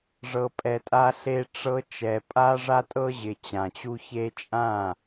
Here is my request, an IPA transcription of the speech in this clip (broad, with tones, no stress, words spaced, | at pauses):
ʐɤ˨pʼɛ˨ tʼa˦ɬe˦ʈ͡ʂɤ˦ t͡ʃɛ˨ pʼa˦ʐa˦tʼɤ˦ʑɪ˨ t͡ɕã˨t͡ɕu˦çe˦ t͡ʃʼã˦˨